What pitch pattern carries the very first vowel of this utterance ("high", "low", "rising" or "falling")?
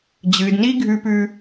low